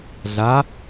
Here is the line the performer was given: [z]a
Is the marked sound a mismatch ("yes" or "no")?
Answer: yes